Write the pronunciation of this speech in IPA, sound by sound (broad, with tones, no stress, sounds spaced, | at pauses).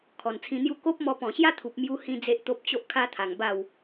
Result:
kʰ ɔ˨˩ n t͡sʰ ĩ˧ n̪ j u˥˧ k o˦ p̚ m ɔ˧ p ɔ̃˨˩ ɕ j a˦ t̪ʰ u˨ p̚ m j u˧ h ĩ˦ d͡z e˦ ʔ t̪ o˦ p̚ t͡ɕ o˦ ʔ kʰ a˦ t̪ʰ a˨˩ ŋ b a˥˧ w